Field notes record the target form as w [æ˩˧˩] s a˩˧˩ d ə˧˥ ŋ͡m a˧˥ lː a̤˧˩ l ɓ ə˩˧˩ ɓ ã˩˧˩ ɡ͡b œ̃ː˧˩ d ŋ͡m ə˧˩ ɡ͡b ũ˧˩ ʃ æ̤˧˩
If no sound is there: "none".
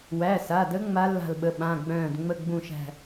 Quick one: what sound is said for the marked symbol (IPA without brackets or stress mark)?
æ˩˧˩